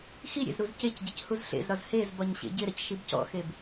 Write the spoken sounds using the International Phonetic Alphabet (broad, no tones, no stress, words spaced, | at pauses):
xi ɾʲḛzɾuzcecɟɪc huzɬḛzɾɒz hezbɒɲ ɕḛɟɪɾɐc ʃibcɔ̰xeb